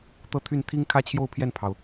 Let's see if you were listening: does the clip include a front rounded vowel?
yes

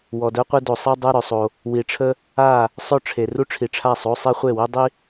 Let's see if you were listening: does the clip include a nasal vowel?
no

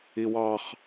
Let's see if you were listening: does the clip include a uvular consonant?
yes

